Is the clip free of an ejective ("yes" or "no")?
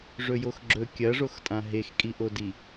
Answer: no